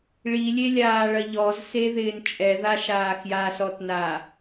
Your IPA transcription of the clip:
ɭ i lʲ e lʲ aː ɭ ɐ ʎ ɔ z s e ð ɪː n t͡ʃʼ ɛ ð a ʃ aː x j a s ɔ t n a

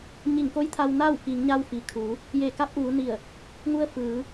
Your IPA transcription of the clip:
ɲ i˧˩ ŋ k o˧˥ j t̪ʰ a˧ w n a˥˨ w k i˩˧ ŋ ɲ a˧ w f i˩ kʰ uː˩˧ | j e˧˩ k a˧˥ p̚ ʔ uː˩˧ n i˧˩ ə̯ | ŋ u˧ ə̯ f ɯː˩˧

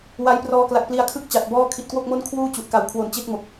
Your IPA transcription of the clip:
w a˦˥ j p r ɔː˦˥ k l a˨˩ k̚ p l i˧ a̯ kʰ ɯ˥˩ k̚ t͡ɕ a˨˩ t̚ b ɔː˥˩ kʰ i˨˩ t̚ k w o˥˩ k̚ m o˥˩ n kʰ w uː˥˩ t͡ɕ u˨˩ ʔ k a˨˩ w kʰ w o˨˩ n t͡ɕ e˦˥ k̚ m o˨˩ k̚

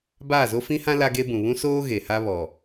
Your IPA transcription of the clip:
b aː˦˨ z o˦ f ĩ˦ h ã˦ l a˦ ɡ e˦ b ũ˨ β ũ˦ s oː˦ ɣ e˨ h a˦ β ɔ˨

